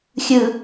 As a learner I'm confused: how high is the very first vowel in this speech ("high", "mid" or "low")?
high